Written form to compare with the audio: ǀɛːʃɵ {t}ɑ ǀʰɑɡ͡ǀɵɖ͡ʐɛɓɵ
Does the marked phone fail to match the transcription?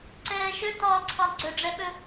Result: no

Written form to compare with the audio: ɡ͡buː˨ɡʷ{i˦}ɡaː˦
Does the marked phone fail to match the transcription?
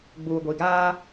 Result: yes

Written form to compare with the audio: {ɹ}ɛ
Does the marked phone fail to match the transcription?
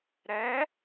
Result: yes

